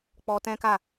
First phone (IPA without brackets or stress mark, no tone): k͡p